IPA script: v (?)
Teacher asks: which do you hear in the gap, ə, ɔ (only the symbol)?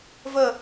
ə